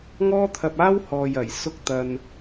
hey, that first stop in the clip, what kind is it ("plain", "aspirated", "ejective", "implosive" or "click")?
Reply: aspirated